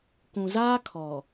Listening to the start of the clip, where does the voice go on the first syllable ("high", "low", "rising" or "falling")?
low